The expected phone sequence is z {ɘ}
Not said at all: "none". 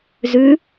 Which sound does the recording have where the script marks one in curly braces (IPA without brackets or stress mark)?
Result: ʉ